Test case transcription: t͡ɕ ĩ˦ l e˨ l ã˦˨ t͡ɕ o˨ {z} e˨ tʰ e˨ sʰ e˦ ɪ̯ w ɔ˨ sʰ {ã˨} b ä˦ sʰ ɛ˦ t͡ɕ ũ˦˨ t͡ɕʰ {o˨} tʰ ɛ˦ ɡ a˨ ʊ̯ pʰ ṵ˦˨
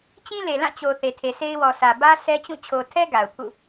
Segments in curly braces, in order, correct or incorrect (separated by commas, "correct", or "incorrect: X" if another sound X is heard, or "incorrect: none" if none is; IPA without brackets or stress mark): incorrect: θ, incorrect: ä˨, correct